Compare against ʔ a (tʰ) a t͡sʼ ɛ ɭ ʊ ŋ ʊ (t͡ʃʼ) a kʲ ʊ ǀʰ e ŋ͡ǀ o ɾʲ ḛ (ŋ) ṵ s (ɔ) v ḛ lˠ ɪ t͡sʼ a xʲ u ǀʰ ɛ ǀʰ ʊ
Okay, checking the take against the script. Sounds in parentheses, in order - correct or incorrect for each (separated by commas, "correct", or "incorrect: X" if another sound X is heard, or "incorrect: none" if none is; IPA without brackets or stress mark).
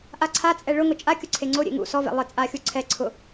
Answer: incorrect: ǀʰ, correct, correct, correct